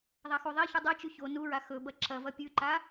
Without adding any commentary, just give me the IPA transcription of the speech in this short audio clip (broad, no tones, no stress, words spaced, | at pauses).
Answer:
ðˤaxuðˤeçu dˤot͡ʃʉ ço nuɹa xɵbɐ ǁɐvɐ pʲʉǃa